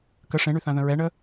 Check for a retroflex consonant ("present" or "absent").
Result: present